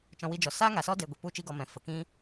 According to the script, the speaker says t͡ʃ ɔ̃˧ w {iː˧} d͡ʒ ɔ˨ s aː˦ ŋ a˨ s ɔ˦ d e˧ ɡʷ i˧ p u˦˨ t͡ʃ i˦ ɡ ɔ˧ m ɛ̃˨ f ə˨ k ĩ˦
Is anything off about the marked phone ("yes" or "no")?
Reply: yes